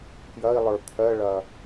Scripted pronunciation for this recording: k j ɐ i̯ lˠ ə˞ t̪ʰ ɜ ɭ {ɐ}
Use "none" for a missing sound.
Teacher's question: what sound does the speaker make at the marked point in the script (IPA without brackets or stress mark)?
ɐ